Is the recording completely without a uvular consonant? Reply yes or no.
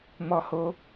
yes